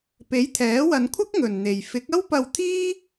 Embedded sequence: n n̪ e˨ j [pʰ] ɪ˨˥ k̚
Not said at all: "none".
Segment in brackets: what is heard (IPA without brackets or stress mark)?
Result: f